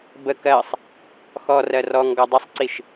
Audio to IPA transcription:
b ə k ɜ sˤ | x ɔ r ɜ r ɔ ŋ ɡ ɔ dˤ ə sˤ ǀ i ʃ

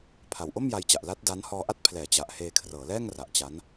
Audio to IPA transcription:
pʰ a˨˩ w ʔ o˥˩ m j a˧ j t͡ɕ a˨˩ ʔ l a˦˥ t̚ d a˦˥ n h ɔː˧ ʔ a˥˩ t̚ pʰ l ɛː˩˦ t͡ɕ a˨˩ ʔ h eː˧ kʰ r ɤː˩˦ l ɛː˥˩ ŋ r a˨˩ ʔ t͡ɕ a˦˥ n

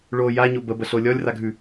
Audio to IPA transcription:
ɭ o j a ɲ o b ə b ə ɬ o lʲ ɔ lʲ r a ɡʱ ʉ

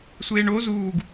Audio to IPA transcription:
sʷ eː ɳ o z uː ɡ

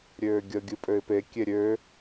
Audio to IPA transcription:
ɾʲ øː ɡʲ ə ɡʲ ɨ pʼ ø ɪ̯ p e kʲ e ɾʲ ø

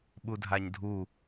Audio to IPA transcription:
ɓ u dʱ a ɲ dʱ u

